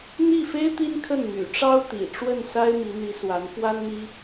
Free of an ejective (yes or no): yes